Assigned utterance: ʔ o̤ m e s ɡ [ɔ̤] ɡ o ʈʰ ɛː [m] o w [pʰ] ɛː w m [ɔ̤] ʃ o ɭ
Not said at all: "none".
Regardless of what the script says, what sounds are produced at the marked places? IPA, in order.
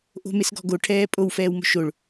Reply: ɔ̤, pʼ, f, o̤

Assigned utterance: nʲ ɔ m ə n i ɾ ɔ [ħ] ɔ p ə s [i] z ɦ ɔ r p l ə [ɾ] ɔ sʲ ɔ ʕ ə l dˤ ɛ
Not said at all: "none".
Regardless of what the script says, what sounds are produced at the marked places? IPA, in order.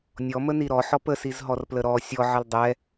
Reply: ħ, i, ɾ

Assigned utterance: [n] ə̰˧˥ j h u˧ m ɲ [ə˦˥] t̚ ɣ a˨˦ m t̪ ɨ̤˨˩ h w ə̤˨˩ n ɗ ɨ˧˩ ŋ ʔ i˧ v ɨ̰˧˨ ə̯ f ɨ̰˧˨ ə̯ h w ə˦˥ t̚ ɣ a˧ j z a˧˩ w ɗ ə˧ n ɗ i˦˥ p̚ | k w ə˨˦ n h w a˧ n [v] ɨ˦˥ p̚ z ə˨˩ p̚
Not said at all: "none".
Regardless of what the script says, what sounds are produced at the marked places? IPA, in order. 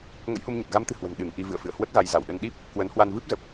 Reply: ŋ, ə˨˩, v

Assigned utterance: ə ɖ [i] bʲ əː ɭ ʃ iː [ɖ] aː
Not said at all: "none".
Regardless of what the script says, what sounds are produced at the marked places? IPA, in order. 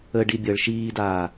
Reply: i, d

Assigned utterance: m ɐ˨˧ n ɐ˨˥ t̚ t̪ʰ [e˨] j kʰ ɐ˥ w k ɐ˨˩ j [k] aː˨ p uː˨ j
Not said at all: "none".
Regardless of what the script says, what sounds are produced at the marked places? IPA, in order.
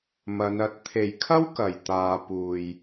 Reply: e˨, t̪

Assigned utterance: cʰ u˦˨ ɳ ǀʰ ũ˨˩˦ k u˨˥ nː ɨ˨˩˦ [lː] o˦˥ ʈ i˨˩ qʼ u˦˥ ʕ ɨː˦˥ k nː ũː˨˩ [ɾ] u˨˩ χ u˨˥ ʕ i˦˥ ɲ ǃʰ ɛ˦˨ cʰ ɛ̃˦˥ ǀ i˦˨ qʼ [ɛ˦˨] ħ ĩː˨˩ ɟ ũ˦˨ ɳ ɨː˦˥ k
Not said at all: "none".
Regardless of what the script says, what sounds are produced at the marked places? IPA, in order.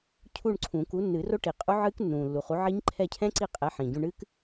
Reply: r, lː, ɛ˨˥

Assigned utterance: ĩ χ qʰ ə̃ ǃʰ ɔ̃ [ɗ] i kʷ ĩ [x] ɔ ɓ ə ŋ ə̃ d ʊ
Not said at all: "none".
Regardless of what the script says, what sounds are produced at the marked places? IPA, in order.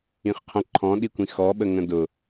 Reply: ɗ, x

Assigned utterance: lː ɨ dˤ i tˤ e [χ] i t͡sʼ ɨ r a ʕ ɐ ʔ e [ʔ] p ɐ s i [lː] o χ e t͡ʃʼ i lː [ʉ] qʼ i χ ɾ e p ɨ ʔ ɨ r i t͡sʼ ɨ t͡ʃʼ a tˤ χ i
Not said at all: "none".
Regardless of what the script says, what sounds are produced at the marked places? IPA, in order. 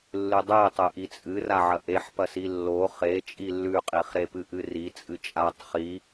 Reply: ʔ, ħ, lː, ʉ

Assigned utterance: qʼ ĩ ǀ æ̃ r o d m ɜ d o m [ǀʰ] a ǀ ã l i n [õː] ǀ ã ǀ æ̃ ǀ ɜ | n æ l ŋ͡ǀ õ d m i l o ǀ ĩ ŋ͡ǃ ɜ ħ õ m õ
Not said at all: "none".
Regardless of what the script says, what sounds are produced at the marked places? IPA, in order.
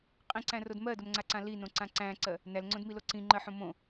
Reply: ŋ͡ǀ, õ

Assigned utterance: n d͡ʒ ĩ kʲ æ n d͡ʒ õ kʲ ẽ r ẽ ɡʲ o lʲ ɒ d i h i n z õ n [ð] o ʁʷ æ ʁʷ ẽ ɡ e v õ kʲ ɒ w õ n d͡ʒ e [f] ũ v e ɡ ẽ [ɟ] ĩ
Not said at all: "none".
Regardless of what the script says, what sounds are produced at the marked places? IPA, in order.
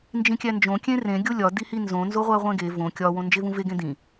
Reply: z, v, d

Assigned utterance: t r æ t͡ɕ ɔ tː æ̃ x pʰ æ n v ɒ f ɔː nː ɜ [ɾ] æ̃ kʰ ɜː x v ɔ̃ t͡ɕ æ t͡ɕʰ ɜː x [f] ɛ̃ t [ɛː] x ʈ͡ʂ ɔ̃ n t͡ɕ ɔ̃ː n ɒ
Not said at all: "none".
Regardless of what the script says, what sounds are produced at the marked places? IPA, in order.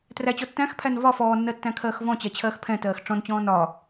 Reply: tː, pʰ, ɜː

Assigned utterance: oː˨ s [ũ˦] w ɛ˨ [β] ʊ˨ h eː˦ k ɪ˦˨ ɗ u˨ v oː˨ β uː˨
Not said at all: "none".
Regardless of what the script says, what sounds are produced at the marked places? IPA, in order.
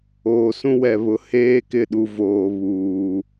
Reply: ũ˦, β

